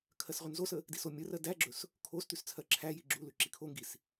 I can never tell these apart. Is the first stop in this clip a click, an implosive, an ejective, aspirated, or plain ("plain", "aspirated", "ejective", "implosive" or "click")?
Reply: aspirated